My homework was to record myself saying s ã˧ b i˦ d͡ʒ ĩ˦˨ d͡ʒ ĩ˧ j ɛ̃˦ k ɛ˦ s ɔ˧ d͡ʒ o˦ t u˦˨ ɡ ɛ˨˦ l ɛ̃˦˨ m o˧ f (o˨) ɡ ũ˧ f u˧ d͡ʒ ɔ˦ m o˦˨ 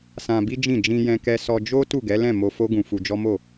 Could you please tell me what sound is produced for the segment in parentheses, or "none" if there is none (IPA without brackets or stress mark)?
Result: o˦